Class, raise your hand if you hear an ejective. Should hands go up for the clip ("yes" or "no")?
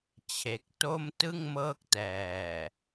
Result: no